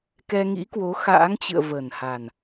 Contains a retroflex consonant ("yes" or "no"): no